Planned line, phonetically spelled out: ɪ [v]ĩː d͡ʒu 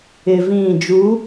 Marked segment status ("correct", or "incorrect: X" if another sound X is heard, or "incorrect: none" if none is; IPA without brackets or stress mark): correct